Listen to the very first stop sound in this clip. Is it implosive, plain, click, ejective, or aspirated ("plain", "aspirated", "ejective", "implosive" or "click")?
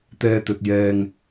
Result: plain